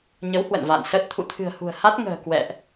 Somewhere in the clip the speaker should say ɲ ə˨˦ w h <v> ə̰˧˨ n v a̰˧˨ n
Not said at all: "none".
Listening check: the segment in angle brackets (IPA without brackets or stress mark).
w